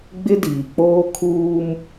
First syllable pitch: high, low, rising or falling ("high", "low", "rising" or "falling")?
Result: high